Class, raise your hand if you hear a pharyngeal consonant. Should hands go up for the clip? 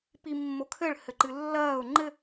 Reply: no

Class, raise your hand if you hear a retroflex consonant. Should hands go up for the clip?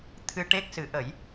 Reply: yes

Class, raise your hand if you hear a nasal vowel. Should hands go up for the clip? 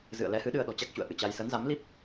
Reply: no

